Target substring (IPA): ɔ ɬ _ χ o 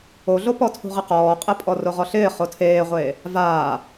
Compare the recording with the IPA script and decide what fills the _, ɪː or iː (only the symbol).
ɪː